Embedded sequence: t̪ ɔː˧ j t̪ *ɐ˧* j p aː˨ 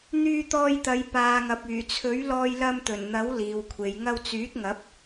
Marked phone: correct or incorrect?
incorrect